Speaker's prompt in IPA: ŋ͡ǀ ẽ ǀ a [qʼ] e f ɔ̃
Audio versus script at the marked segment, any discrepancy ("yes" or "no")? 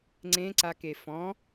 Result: yes